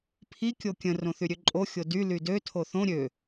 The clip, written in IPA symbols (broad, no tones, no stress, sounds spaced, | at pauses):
pʰ i kʲ o kʲ ə̃ r õ θ y ɾʲ ø ǃʼ o xʲ o d y l y d ø tʰ o θ õ ɾʲ ø